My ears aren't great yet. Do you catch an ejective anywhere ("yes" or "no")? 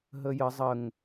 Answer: no